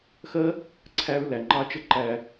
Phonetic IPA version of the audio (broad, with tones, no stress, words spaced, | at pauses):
xɜ˦ | ǀʰæ˧ɹlæ˨ ŋ͡ǃɑ˦t͡ʃə˦ǃæ˧